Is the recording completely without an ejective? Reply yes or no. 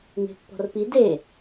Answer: yes